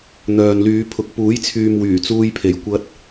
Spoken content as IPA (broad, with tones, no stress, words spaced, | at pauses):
n̪œː˨nlyː˨˧ pʰʊ˨k̚ puː˨˥jt͡sʰyː˨m wyː˨˩t͡suː˧jpʰe˨˩j kʷɐ˧t̚